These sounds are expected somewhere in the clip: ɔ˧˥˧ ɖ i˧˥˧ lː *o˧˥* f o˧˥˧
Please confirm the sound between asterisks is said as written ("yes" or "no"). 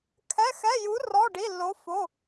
yes